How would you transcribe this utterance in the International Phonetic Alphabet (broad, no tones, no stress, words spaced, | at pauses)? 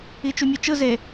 it͡ʃumʲut͡ʃɯ ze